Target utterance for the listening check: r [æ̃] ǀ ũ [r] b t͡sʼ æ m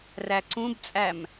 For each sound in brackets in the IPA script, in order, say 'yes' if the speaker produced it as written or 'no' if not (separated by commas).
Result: no, no